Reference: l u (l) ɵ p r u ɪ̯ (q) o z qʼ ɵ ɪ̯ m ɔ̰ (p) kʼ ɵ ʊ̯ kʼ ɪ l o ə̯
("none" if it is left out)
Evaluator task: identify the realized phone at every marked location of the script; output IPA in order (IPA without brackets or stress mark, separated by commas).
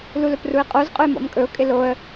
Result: l, qʼ, m